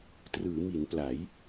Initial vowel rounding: unrounded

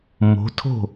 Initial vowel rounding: rounded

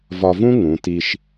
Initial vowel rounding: rounded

